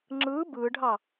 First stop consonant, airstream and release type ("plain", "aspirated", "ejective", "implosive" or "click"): click